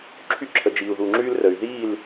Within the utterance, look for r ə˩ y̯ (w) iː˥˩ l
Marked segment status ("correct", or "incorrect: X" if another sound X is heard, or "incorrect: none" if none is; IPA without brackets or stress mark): incorrect: ð